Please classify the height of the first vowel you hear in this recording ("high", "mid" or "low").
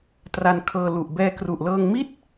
low